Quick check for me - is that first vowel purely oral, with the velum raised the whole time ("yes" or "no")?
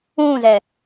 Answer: no